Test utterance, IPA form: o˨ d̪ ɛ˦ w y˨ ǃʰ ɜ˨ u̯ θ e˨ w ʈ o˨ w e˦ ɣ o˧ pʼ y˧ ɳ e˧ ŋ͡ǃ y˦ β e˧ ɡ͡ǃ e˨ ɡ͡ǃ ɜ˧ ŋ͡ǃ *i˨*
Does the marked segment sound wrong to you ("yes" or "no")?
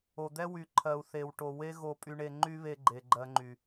yes